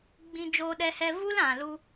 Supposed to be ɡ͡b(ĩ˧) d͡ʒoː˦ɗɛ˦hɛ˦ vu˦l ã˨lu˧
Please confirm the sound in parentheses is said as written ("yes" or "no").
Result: yes